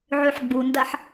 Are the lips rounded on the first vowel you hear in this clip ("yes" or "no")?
yes